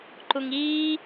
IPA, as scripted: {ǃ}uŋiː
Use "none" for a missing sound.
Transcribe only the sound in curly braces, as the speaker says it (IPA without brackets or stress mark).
ǃ